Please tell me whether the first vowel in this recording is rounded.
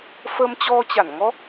no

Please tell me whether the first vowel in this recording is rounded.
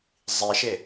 no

